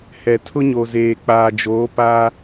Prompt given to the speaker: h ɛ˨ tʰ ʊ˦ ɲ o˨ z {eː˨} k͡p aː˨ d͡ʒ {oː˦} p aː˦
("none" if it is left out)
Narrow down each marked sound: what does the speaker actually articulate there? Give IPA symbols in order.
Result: eː˨, oː˨˦

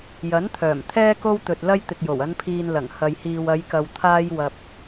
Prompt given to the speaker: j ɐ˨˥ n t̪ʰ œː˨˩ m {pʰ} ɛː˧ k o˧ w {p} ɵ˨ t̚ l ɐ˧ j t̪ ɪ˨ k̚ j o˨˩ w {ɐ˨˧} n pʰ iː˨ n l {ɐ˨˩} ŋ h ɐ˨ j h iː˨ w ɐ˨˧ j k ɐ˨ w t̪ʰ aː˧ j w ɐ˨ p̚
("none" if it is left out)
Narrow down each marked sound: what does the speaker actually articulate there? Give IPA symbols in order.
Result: t̪ʰ, t̪, ɐ˨˧, ɐ˨˩

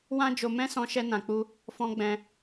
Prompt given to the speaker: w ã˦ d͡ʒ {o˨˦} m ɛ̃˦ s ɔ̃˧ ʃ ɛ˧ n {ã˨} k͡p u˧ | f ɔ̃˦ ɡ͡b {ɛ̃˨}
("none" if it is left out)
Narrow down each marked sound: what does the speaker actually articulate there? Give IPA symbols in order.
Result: o˧, ã˨, ɛ̃˧

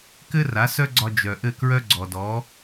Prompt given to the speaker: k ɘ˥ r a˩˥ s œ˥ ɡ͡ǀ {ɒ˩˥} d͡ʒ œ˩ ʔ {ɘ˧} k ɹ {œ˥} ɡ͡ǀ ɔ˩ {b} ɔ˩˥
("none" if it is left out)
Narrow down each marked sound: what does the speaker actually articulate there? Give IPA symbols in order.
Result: ɒ˧, ɘ˥˩, œ˥, d

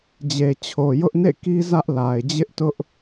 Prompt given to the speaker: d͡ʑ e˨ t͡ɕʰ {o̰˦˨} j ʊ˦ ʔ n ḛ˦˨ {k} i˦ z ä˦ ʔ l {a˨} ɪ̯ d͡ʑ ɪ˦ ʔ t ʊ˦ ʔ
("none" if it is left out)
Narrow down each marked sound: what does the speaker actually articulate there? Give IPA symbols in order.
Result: o˨, k, a˨

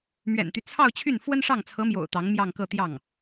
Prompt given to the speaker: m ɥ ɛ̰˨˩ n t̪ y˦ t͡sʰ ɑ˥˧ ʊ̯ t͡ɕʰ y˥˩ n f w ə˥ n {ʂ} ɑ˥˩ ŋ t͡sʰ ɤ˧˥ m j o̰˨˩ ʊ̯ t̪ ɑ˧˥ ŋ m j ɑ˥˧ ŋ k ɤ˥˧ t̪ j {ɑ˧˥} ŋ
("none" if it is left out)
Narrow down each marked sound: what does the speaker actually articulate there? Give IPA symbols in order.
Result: ʂ, ɑ˥˩

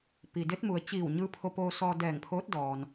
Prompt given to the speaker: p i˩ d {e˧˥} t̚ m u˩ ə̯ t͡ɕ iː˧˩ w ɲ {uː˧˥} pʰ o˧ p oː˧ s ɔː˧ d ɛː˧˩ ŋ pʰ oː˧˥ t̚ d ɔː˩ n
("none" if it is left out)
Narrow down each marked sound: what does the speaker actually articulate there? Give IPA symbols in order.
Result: e˧˥, ɯː˧˥

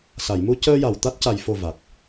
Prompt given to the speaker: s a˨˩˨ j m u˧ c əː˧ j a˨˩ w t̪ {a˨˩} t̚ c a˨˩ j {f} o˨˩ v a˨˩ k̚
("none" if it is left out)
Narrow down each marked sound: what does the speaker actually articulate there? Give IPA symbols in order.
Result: a˦˥, f

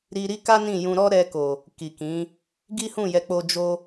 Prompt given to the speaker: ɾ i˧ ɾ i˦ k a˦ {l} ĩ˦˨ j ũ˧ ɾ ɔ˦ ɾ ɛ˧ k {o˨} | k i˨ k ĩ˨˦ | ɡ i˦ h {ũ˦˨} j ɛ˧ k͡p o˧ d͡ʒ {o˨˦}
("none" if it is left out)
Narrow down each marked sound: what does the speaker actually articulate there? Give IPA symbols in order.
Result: n, o˨, ũ˦˨, o˧

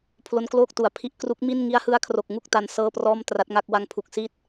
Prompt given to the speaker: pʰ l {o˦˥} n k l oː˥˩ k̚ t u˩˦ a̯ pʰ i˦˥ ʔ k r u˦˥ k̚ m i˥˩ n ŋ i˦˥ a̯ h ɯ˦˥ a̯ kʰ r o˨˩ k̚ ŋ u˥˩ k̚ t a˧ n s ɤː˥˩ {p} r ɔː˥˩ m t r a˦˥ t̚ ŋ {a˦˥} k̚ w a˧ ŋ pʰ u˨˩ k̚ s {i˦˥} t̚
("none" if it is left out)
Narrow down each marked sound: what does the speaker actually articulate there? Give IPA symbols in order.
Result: o˦˥, p, a˥˩, i˦˥

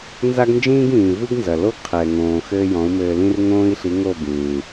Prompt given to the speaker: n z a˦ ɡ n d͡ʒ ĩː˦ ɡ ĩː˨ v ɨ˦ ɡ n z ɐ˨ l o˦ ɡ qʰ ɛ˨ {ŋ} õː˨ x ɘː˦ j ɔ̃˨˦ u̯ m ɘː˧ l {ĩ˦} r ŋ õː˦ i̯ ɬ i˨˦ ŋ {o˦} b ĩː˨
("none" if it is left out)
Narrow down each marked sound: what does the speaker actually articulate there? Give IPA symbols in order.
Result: ŋ, ĩ˦, o˦˨

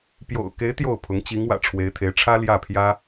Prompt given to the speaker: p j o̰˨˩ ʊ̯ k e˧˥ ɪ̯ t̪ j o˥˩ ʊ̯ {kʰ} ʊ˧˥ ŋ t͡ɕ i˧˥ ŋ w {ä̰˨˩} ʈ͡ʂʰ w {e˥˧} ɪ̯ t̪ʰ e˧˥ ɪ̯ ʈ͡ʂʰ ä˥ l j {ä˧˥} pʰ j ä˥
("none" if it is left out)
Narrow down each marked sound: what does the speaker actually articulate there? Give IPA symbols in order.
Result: pʰ, ä̰˨˩, e˧˥, ä˥˩

